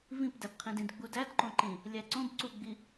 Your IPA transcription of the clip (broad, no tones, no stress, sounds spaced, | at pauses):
v ĩ p d æ p qʰ ĩ d ĩ d ɡ͡b u d æ d ǃ õ ǃ ĩ | lʲ æ ǀ õ b ǀ u ɡ͡b i